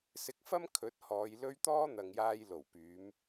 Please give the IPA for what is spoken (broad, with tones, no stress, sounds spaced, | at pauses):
s ɪ˧ k̚ f ɐ˥ m kʰ ɵ˨˥ t̚ h ɔː˨˧ j l ɵ˥ ɥ t̪ ɔː˥ n̪ ɐ˨ ŋ j aː˧ j l o˨˩ w p yː˨˧ m